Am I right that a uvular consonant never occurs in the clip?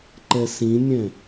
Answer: yes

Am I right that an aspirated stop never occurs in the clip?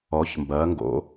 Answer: yes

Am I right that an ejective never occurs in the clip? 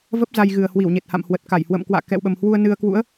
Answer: yes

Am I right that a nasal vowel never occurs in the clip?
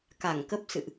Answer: yes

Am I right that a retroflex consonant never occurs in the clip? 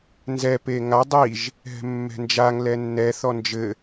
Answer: yes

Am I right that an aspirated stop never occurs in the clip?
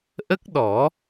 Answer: yes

